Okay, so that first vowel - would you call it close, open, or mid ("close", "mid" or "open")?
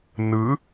close